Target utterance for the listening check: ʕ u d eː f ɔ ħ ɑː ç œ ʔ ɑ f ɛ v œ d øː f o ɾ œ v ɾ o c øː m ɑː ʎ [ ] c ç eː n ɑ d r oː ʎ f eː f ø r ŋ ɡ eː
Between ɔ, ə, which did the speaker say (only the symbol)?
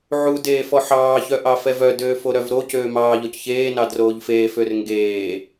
ɔ